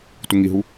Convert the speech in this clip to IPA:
t u ŋ i ɦ u

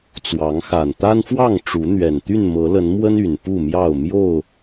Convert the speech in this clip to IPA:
t͡s w ɑ˨˦ ŋ x a˨˩ n t̪ a˦ n f w ɑ˥˨ ŋ ʈ͡ʂ u˨˦ n̪ ɥ ɛ˨˩ n t̪ y˥˨ n m ɤ˨˦ l ə˨˦ n m w ə˦ n y˨˩ n p u˥˨ m j ɑ˥˨ ʊ̯ m j o˥˨ ʊ̯

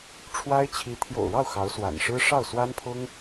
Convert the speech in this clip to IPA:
ʈ͡ʂʰ w a˥ ɪ̯ t͡ɕʰ i˧˥ t̪ʰ j o̰˨˩ ʊ̯ ɻ ɑ˥˩ ʊ̯ x ɑ˧˥ ʊ̯ s w a̰˨˩ n ʂ ɻ̩˥ ʂ ɑ˥˩ ʊ̯ s w a˥ n pʰ ʊ˥ ŋ

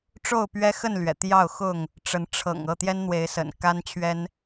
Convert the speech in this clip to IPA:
ʈ͡ʂ o˥˨ ʊ̯ p ɥ ɛ˦ x ə˥˨ n l ɥ ɛ̰˨˩ t̪ j ɑ˥˨ ʊ̯ x ʊ˥˨ ŋ | ʈ͡ʂ ə˨˦ n ʈ͡ʂʰ ɤ̰˨˩ ŋ ɤ˥˨ t̪ j ɛ˦ n n̪ w e˨˦ ɪ̯ s ə̰˨˩ n k a˦ n t͡ɕʰ ɥ ɛ˦ n

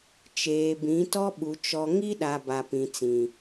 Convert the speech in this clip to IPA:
t͡ʃ eː˨ b ĩ˨˦ t ɔ˦ ɓ u˨ t͡ʃ ɔ˨ ŋ i˦ ɗ a˨ b a˨ p ĩ˨ t͡s ĩ˨

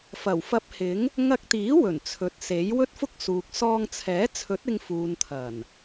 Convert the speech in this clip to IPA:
f ɐ˨˩ w f ɐ˧ p̚ h ɪ˨˥ ŋ | ŋ ɐ˧ k̚ t̪ iː˨˥ w ɵ˨˩ n t͡sʰ ɵ˨ t̚ s e˨˥ j w ɵ˥ t̚ f ʊ˥ k̚ s uː˨ k̚ s ɔː˧ ŋ t͡sʰ ɛː˨˥ t͡sʰ ɵ˨˥ t̚ ɪ˧ ŋ f uː˨ n t̪ʰ ɐ˨˩ n

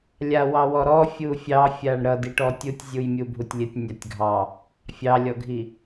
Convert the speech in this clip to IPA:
lʲ a w ɑ w ɔ ɾ ɔ fʲ u fʲ ɑ fʲ a ɳ ɾ ʌ d i ʈ ɔ tʲ u tʲ zʲ u j mʲ u bʱ u tʲ lʲ ə tʲ nʲ a tʲ ɡʱ ɑ | fʲ ɑ lʲ ɔ ɡʱ i

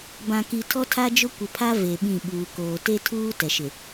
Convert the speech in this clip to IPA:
b ã˨ k i˨ tʰ ɔ˦ tʰ a˦ d͡ʒ ʊ˦ kʷ ɪ˨ pʰ a˦ v e˨ ɓ ĩ˦˨ ɓ uː˨ k oː˨ t e˦ tʰ uː˦ t ɛ˨ ʃ ɪ˨

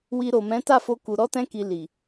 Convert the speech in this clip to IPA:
w i˧ ɾ o˨ m ɛ̃˨˦ t a˦˨ f o˧ k u˨ ɾ ɔ˧ t ɛ̃˧ k i˨ l i˨

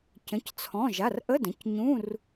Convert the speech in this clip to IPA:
c ə̃˩˧˩ c t͡sʰ ɔ̃˩˧˩ ʒ a˩˧˩ r ʔ ə˧˥˧ d ə̃˩˧˩ c ɲ ũ˧˥˧ r

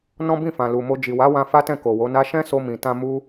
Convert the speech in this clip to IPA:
n ɔ̃˦ b ĩ˦˨ f ã˨ l u˨ m o˧ d͡ʒ i˨ w a˨˦ w ã˧ f a˦ t ɛ̃˦˨ k o˨ w o˨˦ n a˦ ʃ ɛ̃˦ s o˧ m ĩ˨ t ã˧ m u˦

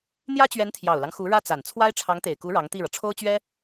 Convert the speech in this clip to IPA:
n̪ j ä˥ t͡ɕ ɥ ɛ˧˥ n t̪ʰ j ɑ˨˩ ʊ̯ l ɑ˦ ŋ x u˧˥ ɻ ä˥ t͡s a˨˩ n t͡sʰ w a˥ ɪ̯ ʈ͡ʂʰ ɑ˧˥ ŋ t̪ e˨˩ ɪ̯ k u˧˥ ɻ ɑ˧˥ ŋ t̪ i˥˩ ɻ ɤ˩ ʈ͡ʂʰ o˥ ʊ̯ t͡ɕ ɥ ɛ˥

